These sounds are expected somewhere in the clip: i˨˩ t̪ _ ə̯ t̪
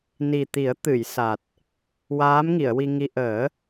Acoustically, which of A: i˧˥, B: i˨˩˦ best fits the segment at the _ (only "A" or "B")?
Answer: B